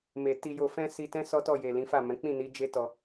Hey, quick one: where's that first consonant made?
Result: lips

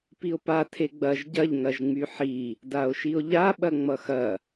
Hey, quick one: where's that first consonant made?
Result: lips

